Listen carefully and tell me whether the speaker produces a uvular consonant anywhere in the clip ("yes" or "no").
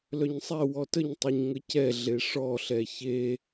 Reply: no